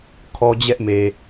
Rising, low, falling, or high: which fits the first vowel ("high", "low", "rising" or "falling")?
high